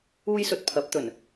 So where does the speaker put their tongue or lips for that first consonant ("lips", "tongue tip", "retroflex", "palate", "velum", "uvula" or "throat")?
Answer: palate